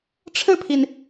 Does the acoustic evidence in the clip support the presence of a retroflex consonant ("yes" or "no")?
yes